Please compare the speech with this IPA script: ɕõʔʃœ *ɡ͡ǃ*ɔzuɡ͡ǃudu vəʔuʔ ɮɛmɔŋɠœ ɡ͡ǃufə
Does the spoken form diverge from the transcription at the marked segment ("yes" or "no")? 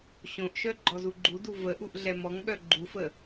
no